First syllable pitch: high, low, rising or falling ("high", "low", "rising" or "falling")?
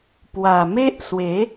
low